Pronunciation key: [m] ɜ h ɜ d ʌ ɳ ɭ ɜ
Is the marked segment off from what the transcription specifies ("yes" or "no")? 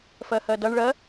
yes